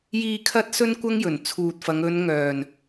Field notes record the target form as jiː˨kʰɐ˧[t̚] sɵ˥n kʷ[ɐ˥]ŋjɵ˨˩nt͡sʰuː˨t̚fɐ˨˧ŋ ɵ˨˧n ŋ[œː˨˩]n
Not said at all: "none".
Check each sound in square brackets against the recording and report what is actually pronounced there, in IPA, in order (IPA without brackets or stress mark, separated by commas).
t̚, ɐ˥, œː˨˩